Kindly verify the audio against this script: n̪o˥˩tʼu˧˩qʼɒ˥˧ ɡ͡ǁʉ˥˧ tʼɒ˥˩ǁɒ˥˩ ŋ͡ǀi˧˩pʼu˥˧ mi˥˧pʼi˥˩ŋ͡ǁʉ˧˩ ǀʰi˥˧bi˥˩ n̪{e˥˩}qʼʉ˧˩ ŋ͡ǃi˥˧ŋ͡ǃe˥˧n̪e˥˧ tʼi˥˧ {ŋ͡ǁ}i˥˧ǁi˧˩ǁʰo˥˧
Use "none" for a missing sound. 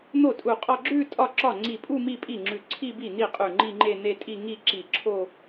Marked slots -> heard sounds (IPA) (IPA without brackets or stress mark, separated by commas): i˥˩, ŋ